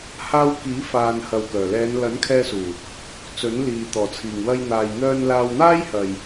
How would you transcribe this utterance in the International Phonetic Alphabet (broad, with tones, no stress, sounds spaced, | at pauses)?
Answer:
h aː˧ w k iː˨˥ f aː˨ n h ɐ˨ w k œː˨˩ l ɛː˨˧ n l ɐ˨˥ n kʰ ɛː˧ s uː˨˩ | t͡s ɵ˨˥ n l iː˨ t̪ ɔː˨˩ t͡sʰ iː˨˩ ŋ w ɐ˧ j n̪ aː˨ j n̪ œː˧ n l aː˧ w n̪ aː˥ j h ɐ˨ j